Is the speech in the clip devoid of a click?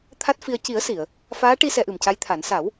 yes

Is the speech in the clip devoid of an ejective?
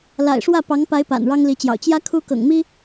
yes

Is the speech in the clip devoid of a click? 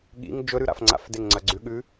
no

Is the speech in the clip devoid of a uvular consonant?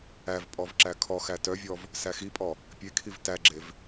yes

